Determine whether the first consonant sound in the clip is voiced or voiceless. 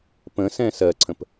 voiceless